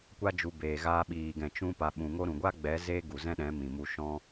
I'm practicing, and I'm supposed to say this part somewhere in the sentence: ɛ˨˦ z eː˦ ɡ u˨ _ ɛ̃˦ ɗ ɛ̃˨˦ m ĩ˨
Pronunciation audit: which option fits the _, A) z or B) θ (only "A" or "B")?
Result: A